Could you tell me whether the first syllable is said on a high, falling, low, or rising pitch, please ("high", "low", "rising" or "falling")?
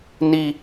high